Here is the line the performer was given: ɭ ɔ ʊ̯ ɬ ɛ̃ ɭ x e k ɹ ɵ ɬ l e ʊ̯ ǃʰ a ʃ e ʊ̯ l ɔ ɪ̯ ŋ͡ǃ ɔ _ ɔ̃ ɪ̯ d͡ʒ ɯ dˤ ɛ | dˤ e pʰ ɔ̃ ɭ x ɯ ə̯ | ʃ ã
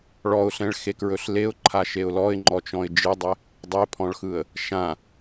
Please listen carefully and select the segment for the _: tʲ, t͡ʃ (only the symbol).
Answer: t͡ʃ